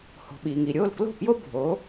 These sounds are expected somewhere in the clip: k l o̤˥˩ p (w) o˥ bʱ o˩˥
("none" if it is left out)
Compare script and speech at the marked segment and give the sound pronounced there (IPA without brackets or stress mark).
j